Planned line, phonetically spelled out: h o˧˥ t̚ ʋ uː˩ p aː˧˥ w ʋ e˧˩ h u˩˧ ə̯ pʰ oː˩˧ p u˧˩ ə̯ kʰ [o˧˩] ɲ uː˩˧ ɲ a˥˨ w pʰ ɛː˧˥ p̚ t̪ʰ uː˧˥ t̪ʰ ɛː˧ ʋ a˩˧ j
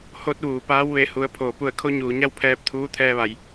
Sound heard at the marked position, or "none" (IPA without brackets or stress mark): o˧˥